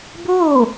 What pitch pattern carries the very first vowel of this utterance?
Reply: falling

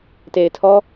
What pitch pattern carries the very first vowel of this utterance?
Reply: low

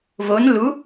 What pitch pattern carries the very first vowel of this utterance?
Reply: rising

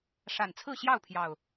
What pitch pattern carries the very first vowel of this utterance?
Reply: low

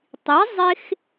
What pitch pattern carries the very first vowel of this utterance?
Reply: rising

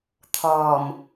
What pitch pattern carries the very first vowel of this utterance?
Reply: low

